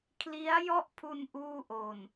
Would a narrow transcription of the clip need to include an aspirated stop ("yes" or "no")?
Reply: yes